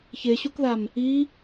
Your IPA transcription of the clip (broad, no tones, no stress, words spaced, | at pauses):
çeɕukðam | i